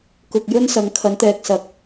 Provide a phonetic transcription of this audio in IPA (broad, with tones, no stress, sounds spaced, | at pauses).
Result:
k ʊ˨ k̚ j ɵ˥ n s ɐ˨˥ ŋ kʰ ɐ˨˥ n t̪ ɛː˨ k̚ s ɐ˨˥ k̚